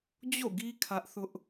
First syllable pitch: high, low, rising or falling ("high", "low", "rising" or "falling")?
falling